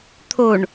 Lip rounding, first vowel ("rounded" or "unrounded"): rounded